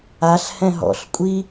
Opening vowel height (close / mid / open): open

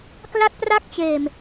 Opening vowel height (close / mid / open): open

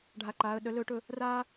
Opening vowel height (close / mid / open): open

